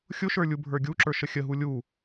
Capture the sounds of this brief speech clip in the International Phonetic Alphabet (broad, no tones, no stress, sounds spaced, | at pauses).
xʲ ʊ ʃ ə˞ lʲ u bʱ ə˞ ɡʲ u ǁ ə˞ ʃ ə xʲ ə ɦ u lʲ u